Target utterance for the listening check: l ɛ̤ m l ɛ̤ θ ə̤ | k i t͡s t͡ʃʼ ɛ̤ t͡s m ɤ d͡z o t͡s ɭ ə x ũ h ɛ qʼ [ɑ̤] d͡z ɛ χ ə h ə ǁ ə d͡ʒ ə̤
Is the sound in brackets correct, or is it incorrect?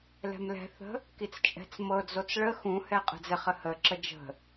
incorrect